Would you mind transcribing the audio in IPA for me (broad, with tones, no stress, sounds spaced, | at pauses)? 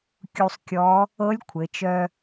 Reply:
kʲ u˧ sˤ kʲ ɔ˧˥ | ɤ˧˥ lʲ kʷʰ ɘ˩˧ t͡ʃ œ˧